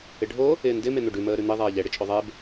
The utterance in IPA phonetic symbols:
ɪ ɖʱ o | ɪː n d ɪ m e n̪ o ɖ ʉ m əː ɾ ʉ n̪ i ðˤ ɛː ʎ ɛ ɽ ɪ t͡ʃʼ o ðˤ e b

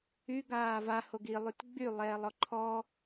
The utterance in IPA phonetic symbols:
y ɡ aː v a h o ɡ i lˠ y t ɡ͡b y lˠ ɛː lˠ ɔ ǃʰ ɔ

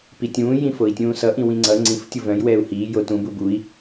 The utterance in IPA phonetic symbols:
p i tʲ ũː j ĩ f o i̯ tʲ ũː s ʌ ʔ ĩ w ĩ ŋ͡ǀ ʌ ŋ͡ǀ ĩ f tʲ u v œ̃ j w ɛː u̯ h iː j o t ũ b u b u i̯

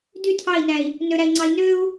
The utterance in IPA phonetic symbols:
d y tʰ ɑ i̯ n æ i̯ | n ø ɾ æ i̯ ŋ͡ǀ ɑ i̯ n ø u̯

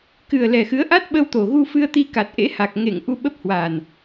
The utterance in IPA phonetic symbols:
k ɨ˨˩ ə̯ l ɛ˨˩ x ɨ˨˦ ə̯ ʔ a˦˥ t̚ ɓ ə˧ w t̪ o˨˩ ɣ u˧ f ɨ˧ ə̯ t̪ i˧ k a˨˩ t̚ ʔ ḛ˧˥ h a˨˩ k̚ ŋ ḛ˧˨ ŋ ʔ u˧ ɓ ə˦˥ p̚ h w aː˨˩ n

